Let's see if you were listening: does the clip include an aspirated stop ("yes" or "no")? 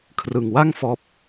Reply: yes